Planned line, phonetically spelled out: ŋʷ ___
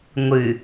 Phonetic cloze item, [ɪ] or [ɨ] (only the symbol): ɨ